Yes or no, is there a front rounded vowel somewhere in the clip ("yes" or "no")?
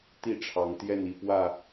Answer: no